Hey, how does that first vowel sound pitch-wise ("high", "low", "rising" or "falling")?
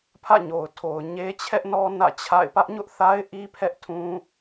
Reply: falling